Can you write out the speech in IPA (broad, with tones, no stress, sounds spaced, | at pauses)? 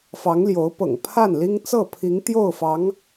f ɑ˧˥ ŋ l j o˧˥ ʊ̯ p ɤ̰˨˩ ŋ pʰ a˥˩ n l i˥ ŋ t͡s ɤ˥˩ pʰ i˧˥ ŋ t̪ j o˥˩ ʊ̯ f ɑ˧˥ ŋ